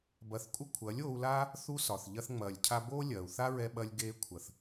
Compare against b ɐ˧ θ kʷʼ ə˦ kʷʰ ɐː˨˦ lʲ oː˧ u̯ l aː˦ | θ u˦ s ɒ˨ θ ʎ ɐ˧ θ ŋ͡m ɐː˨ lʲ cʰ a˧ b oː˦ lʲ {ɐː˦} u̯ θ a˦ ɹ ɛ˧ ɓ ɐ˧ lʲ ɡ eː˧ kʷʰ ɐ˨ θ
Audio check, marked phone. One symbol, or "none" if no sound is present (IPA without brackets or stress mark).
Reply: ɐː˨